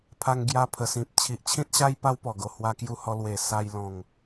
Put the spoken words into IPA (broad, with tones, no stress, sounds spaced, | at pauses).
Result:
pʰ a˧ ŋ ɡ j a˧ pʰ ə˨˩ s ĩ˨ p̚ t͡ɕʰ i˨ ʔ t͡ɕʰ ĩ˦ t̚ ɕ a˦ j p a˦ w p ɔ˨˩ ɡ o˨˩ h w a˧ k j u˧ h ɔ˧ l w e˨˩ s a˧ j l ɔ̃˨˩ ŋ